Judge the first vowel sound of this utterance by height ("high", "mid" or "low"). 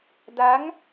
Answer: low